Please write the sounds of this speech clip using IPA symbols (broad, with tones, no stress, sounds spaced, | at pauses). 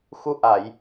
x u˧˥ ʔ a˨˩˨ j